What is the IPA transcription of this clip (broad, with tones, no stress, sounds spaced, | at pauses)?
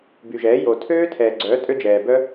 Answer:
b y˨ ʒ ɛː˨˦ j o˨ tʰ øː˦ tʰ ɛː˨ ɡ͡ǀ œː˨˦ tʼ ø˦ d͡ʒ ɛː˨ b œ˦